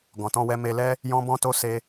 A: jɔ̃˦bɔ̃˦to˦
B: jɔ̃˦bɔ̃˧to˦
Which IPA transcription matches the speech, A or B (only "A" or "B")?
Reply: A